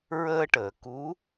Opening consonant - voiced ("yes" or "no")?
yes